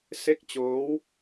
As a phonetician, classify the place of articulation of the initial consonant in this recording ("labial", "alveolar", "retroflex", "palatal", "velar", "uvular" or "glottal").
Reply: alveolar